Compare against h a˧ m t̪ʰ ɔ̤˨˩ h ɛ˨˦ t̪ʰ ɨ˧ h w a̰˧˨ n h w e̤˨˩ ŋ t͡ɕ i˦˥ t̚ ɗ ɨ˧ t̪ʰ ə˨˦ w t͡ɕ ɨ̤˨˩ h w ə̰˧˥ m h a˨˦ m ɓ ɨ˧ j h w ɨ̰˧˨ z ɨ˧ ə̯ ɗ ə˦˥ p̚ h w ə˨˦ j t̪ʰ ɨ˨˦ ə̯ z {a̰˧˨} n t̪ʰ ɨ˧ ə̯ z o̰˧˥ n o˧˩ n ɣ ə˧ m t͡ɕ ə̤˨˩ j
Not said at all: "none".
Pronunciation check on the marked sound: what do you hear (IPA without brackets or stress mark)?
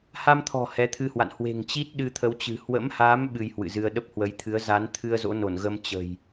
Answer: a˨˦